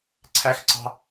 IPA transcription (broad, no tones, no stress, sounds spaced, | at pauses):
ǀʰ æ x ǀ ɑ̤